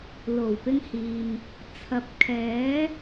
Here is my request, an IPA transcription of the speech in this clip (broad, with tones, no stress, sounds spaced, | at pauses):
l o˨˩ w p ɪ˧ ŋ h iː˨ m | t͡sʰ ɐ˨˥ p̚ kʰ ɛː˨˥